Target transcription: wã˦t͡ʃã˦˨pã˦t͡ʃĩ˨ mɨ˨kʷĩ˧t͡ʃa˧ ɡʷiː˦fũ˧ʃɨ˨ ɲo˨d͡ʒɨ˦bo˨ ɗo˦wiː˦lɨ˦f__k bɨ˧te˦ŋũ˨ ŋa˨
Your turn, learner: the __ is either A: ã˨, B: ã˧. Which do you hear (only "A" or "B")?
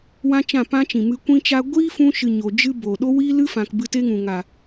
A